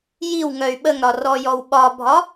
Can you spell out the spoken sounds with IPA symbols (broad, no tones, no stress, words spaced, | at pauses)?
jiw ŋœy̯ɓəŋɾɒ rɔjɔwɓɒbʱɒ